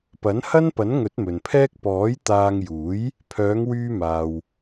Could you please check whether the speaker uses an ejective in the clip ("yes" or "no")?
no